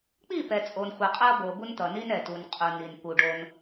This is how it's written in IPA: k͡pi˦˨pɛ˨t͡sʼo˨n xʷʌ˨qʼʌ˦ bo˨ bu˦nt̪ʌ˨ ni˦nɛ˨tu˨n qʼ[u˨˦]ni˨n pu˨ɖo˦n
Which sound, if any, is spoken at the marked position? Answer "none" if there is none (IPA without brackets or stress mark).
u˨